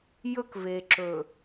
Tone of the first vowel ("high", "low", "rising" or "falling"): high